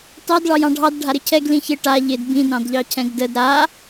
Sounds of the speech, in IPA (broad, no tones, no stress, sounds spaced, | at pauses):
t ɑ d ɭ ɑ j ɑ̃ ɖʱ ɑ d ɖʱ a ɾ ɪ cʰ ɛ ɡ l ĩ ç ɪ ʈ a ʎ ɪ d b ĩ d ɾ ɑ̃ d ʎ ɑ cʰ ɛ̃ ɡ d ə d ɾ a